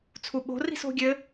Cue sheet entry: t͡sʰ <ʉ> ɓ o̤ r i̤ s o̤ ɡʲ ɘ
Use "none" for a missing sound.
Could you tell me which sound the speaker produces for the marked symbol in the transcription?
u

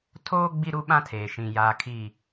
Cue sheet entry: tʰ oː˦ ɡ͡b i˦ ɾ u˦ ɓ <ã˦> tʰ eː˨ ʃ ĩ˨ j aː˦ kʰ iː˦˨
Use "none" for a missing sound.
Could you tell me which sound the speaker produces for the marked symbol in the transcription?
ã˦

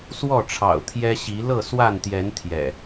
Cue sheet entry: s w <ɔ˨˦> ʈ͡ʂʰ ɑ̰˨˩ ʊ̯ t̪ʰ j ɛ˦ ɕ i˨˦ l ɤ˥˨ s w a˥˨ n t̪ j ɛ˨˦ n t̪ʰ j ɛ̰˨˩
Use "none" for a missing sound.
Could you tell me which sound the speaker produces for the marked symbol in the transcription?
ɔ˥˨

